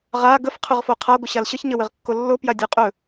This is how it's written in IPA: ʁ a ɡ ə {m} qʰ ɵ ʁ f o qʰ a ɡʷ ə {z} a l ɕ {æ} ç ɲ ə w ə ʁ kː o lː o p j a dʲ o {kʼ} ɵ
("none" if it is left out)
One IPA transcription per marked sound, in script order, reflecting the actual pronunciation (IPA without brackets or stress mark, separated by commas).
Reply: f, ɕ, ə, qʼ